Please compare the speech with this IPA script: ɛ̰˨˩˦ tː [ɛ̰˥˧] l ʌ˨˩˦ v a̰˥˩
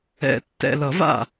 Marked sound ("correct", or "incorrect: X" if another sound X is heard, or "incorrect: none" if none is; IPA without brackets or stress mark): incorrect: ɛ̰˨˩